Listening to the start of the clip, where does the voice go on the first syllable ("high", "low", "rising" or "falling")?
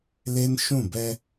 high